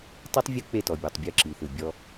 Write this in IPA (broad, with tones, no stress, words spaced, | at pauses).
tˤi˦tˤ vʲɯ˦k͡pe˦˨tɔ˨ bʲɔ˨tˤbʲɯ˦˨ǁi˨θɯ˨ bʲɔ˦